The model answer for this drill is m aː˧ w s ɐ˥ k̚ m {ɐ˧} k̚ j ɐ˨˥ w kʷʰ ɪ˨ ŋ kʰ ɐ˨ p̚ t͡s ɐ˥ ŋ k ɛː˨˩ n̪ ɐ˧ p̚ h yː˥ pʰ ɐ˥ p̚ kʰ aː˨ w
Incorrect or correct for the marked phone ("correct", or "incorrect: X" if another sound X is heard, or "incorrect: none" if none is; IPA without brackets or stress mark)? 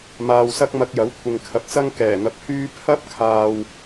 correct